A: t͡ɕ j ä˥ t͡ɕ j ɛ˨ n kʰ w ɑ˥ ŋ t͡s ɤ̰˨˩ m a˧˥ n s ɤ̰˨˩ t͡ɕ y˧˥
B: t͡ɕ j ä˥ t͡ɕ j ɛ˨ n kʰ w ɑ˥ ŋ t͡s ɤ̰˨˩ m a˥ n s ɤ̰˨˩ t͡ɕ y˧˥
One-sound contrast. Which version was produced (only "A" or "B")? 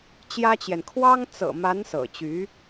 A